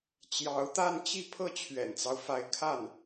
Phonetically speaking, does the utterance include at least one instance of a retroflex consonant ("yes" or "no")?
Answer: no